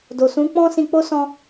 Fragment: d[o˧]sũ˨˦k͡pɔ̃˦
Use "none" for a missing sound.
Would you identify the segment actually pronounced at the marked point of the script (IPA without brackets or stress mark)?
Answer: o˨